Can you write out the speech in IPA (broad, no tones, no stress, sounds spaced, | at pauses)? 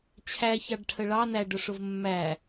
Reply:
t͡ɕʰ æ ç ɑ ɖ ʈʰ ə ɭ ɑ n æ ɖ ʊ ʂ ʊ v mː æ